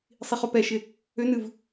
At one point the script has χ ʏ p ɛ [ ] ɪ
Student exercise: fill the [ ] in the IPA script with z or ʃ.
ʃ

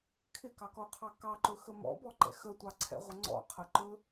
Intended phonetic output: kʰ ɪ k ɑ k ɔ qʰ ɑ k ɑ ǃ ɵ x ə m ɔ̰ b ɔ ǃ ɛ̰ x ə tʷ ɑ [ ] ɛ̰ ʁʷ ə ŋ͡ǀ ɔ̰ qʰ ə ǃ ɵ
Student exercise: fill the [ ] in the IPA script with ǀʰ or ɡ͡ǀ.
ǀʰ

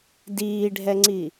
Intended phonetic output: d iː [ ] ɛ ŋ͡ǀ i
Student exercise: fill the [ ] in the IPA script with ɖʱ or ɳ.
ɖʱ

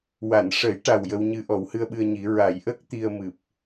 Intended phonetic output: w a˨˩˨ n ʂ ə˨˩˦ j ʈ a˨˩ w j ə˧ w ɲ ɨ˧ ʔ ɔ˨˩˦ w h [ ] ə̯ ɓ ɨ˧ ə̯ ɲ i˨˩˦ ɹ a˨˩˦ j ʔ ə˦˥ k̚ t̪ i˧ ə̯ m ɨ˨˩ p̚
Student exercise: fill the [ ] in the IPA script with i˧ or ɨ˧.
ɨ˧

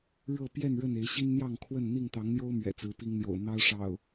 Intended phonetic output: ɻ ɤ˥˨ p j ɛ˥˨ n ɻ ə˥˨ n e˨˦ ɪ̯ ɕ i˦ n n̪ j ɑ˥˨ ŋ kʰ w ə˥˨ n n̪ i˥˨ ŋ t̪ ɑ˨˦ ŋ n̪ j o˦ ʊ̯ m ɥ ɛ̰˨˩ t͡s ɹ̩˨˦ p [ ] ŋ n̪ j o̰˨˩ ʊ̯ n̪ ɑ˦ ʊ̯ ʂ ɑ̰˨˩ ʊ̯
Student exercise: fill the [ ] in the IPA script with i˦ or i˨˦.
i˦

